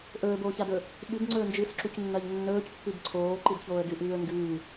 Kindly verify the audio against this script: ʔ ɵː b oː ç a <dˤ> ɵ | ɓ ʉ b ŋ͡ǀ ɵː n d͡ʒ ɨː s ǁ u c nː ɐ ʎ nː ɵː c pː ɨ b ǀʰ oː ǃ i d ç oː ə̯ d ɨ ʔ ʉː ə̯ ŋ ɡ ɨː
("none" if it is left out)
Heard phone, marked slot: d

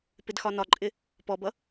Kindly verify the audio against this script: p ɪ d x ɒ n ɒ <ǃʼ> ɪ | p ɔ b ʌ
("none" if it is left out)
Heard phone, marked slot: ǃʼ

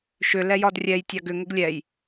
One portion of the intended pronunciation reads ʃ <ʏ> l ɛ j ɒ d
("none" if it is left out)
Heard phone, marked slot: ʏ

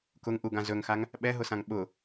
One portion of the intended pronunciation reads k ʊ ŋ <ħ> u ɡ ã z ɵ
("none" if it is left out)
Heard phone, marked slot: ʔ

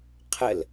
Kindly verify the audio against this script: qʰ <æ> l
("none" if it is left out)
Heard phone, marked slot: ə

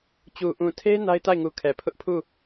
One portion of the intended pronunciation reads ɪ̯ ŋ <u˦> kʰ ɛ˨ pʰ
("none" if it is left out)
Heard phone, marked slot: u˨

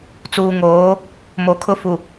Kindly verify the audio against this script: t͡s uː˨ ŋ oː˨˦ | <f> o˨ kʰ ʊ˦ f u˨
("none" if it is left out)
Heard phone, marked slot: m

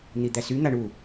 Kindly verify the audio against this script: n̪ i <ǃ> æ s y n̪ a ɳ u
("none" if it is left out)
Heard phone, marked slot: d̪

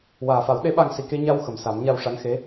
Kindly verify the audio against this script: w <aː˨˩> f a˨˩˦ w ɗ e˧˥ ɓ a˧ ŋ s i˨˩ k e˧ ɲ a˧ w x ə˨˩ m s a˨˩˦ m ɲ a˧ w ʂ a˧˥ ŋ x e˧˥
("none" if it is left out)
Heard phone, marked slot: aː˨˩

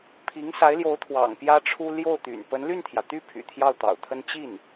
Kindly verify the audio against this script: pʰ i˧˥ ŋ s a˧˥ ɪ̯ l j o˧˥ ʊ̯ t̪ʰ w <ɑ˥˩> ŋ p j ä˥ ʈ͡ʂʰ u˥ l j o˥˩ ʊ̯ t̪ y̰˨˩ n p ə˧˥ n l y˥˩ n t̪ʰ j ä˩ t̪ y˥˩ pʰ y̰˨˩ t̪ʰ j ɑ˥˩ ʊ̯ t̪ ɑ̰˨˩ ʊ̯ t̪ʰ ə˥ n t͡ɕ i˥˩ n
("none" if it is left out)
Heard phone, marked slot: ɑ̰˨˩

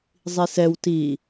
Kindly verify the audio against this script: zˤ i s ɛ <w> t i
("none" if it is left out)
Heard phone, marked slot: w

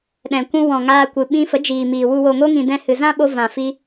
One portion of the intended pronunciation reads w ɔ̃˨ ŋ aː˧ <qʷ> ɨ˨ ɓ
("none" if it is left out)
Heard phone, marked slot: kʷ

